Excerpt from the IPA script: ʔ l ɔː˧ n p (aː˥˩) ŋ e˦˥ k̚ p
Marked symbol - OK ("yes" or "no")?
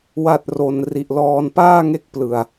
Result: yes